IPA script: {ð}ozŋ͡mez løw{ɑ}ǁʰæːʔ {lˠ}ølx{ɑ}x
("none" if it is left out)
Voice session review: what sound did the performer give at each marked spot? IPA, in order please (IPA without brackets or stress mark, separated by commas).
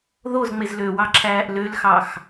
ð, ɑ, l, ɑ